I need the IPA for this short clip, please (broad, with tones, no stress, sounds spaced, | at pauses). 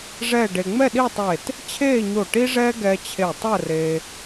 ʐ ɛː˥˧ ɖ e˧ ŋ͡m ɛ˥˧ ɗ i˥˧ tˤ eː˧˩ t | t͡ɕʰ eː˥˧ ɲ o˧˩ ʈ i˥ ʐ ɛː˥ ɡ ɛː˧ t͡ɕʰ e˧˩ tˤ əː˥˧ r eː˧